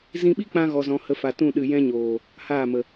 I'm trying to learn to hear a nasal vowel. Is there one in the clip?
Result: yes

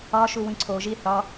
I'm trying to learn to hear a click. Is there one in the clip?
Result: yes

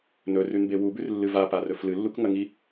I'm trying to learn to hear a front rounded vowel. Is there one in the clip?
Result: no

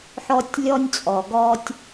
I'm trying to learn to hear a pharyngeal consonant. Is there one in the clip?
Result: yes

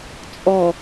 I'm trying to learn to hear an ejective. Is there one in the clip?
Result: yes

